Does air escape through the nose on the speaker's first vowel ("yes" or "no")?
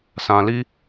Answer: yes